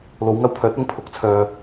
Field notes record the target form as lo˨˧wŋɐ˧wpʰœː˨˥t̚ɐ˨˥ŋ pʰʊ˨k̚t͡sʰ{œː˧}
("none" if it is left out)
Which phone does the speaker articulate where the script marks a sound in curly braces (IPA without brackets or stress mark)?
œː˧